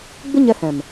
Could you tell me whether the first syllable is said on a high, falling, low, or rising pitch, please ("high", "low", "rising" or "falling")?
high